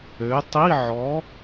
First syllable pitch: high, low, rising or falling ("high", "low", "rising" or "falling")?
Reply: rising